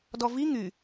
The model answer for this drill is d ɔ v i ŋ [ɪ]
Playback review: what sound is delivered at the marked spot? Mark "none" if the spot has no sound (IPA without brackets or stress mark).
y